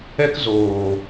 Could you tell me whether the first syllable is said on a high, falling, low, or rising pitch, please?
high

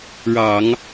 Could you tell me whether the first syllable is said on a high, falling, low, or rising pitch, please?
low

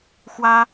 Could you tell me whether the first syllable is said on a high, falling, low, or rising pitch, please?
high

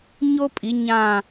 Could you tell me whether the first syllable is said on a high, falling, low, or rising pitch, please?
high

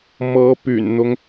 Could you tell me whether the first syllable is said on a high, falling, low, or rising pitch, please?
rising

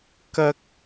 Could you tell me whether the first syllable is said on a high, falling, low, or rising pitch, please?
high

